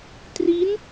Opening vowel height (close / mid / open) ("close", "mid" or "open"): close